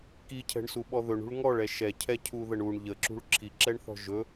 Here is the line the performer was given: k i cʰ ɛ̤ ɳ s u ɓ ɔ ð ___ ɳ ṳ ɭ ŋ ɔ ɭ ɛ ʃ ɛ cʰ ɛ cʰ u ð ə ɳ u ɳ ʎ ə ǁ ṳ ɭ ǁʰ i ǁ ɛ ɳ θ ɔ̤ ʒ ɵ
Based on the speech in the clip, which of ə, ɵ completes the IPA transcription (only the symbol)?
ɵ